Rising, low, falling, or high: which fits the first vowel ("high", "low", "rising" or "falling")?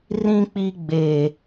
high